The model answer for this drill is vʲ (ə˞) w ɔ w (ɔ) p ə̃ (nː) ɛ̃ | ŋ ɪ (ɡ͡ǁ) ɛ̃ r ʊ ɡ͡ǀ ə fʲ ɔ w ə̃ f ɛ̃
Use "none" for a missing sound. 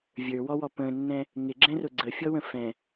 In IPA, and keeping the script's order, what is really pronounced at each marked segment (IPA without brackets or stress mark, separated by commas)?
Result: ə˞, ɔ, nː, ɡ͡ǁ